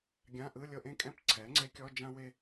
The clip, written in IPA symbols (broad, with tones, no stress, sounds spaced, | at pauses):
ɡʲ ã˧˥˧ ʔ ɯ˧˥˧ lʲ ɤ˥˧ ʔ ẽ˥˧ kʼ ɛ̃˥˧ p ǀʰ ɛ˩˥ ŋ͡ǀ e˧˥ kʲ ɔ˧˥˧ d͡ʒ ã˥ w e˥˧